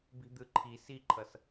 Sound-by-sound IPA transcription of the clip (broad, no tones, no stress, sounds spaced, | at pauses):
b i̤ d̪ ɯ ǃʰ i s i ǃʰ ʌ s